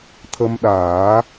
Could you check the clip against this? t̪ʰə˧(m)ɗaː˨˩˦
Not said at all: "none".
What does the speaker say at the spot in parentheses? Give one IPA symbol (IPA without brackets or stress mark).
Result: m